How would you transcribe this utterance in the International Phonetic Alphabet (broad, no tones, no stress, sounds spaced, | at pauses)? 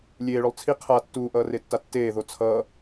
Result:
lʲ eː ɭ o lˠ t͡sʰ i qʰ a tː uː ʔ ʌː r e tː a tː eː ð o t͡sʰ ʌː